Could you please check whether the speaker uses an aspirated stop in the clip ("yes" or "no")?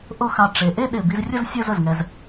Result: no